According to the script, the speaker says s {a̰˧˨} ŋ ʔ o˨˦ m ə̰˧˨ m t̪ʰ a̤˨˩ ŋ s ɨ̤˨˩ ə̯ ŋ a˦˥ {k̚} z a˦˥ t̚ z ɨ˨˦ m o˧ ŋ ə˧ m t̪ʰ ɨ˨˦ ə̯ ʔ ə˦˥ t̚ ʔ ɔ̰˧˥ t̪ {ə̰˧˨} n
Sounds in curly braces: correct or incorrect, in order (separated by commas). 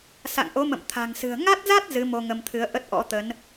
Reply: correct, incorrect, incorrect